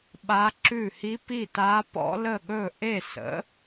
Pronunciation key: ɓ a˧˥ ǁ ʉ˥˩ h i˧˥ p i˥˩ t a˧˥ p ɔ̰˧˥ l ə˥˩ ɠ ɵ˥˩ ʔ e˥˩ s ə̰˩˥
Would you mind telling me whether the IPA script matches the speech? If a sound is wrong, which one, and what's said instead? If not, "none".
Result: none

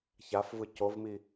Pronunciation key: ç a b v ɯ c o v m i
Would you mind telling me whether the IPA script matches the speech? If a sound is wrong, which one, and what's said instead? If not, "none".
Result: b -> f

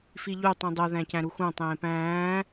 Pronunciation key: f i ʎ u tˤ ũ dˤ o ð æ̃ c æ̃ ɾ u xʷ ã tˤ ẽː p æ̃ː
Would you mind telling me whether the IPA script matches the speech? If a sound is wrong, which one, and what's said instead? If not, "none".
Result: ã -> æ̃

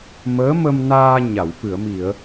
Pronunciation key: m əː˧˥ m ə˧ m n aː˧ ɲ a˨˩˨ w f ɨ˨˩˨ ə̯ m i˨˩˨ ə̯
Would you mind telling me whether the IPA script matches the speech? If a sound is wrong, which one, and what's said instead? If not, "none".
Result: none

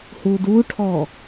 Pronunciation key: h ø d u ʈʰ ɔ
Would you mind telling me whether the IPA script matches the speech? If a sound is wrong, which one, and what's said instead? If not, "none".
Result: ø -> u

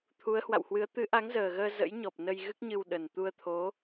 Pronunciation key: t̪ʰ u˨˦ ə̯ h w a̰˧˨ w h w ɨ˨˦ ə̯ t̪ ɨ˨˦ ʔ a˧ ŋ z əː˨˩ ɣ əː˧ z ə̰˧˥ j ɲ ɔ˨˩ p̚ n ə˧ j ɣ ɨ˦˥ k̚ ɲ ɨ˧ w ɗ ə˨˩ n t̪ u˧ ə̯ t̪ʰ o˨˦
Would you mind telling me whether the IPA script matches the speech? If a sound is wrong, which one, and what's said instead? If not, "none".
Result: a˧ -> a˨˦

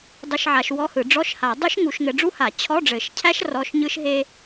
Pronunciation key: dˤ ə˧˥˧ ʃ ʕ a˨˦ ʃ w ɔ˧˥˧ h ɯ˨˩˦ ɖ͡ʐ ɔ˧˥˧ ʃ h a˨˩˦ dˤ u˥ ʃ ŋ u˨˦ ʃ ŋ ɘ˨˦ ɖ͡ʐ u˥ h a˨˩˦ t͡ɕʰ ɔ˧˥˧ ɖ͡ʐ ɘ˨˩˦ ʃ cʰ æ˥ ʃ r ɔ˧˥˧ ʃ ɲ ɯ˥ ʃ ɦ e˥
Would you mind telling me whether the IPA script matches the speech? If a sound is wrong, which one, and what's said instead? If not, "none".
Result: none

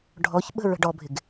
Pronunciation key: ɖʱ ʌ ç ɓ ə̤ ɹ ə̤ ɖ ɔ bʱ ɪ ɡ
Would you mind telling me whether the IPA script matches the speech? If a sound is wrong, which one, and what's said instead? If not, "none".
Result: ʌ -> ɔ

